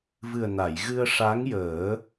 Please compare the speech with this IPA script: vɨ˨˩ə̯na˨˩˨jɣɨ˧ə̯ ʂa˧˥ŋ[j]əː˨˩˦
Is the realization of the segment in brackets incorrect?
no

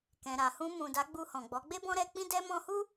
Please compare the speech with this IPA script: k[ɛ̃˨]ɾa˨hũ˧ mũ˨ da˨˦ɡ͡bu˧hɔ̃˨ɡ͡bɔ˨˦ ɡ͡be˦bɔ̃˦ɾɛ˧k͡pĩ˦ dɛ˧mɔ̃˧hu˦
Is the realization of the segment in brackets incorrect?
no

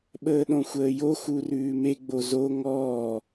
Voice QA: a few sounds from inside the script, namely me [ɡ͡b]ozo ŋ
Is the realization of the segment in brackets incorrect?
no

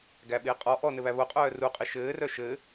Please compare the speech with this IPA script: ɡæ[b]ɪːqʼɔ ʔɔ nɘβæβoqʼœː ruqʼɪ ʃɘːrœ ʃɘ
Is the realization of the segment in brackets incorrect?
yes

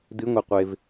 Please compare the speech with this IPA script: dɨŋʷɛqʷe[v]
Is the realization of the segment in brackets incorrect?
no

